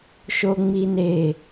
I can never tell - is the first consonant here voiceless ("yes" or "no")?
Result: yes